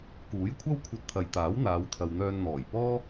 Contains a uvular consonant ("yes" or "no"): no